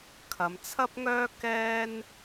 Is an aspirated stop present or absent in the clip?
present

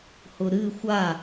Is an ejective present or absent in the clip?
absent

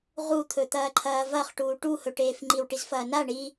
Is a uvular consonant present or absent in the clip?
present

